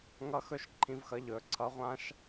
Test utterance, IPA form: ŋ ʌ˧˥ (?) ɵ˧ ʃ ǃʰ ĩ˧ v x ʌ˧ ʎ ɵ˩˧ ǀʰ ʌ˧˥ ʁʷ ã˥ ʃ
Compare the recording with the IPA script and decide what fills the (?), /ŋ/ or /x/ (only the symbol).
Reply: x